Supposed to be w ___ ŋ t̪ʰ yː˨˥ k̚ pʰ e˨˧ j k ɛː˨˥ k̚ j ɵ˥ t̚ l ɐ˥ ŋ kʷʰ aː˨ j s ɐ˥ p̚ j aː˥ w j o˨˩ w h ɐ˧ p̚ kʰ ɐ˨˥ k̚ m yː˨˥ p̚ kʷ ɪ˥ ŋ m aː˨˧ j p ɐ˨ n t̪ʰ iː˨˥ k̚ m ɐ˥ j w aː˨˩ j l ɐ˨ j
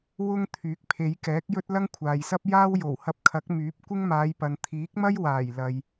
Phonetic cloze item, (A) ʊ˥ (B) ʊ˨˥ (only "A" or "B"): A